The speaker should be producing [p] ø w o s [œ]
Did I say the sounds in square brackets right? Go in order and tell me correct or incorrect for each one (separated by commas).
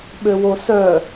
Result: incorrect, correct